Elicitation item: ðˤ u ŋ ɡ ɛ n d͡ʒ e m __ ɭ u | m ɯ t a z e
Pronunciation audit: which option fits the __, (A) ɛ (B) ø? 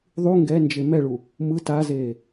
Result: A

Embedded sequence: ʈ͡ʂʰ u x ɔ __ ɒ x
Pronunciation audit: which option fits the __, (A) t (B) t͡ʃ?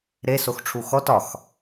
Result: A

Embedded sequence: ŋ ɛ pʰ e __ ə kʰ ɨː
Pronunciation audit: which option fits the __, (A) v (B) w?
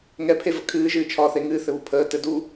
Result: A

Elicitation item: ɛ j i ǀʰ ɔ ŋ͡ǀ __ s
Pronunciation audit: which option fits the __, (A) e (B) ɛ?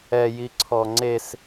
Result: A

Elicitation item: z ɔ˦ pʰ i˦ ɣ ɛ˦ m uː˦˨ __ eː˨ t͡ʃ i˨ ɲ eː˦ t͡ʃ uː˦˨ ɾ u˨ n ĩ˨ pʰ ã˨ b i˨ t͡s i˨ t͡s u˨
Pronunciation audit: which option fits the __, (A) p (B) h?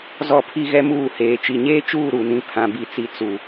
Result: B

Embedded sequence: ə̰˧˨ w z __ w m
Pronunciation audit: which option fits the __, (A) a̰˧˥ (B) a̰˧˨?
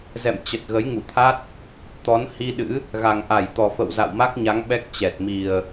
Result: B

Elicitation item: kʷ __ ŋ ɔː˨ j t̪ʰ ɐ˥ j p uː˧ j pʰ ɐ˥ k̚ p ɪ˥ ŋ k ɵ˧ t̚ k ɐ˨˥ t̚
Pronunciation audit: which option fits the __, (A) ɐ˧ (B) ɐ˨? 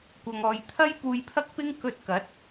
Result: B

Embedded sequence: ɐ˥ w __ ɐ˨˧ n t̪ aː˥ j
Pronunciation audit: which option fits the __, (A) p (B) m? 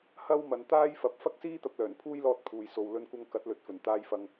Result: B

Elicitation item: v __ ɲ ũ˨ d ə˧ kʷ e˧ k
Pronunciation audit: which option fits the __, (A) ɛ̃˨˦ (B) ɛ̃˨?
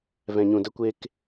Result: B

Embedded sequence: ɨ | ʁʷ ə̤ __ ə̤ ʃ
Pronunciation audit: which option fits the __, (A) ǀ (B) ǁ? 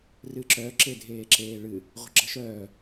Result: B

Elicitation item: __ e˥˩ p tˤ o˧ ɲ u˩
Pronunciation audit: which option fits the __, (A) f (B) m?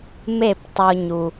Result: B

